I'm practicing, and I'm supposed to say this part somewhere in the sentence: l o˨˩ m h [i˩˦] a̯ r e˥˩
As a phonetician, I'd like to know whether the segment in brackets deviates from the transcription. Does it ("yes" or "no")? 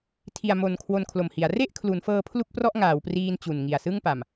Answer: no